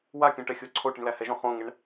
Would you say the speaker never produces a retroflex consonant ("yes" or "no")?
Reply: no